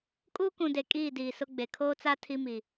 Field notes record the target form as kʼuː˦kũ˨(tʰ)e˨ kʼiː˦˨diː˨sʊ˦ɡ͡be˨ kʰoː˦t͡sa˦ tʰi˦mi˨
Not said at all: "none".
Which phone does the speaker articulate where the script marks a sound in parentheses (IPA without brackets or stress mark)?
d